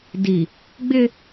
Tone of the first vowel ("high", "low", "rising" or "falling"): low